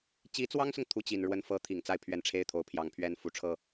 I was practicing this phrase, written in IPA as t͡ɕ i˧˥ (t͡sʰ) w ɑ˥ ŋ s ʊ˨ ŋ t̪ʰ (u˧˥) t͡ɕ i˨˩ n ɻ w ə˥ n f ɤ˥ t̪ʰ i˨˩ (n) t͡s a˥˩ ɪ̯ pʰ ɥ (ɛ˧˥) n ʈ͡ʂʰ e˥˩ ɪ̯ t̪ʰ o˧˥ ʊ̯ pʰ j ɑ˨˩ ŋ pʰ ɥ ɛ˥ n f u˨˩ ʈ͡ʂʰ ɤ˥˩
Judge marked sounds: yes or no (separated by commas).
no, no, no, yes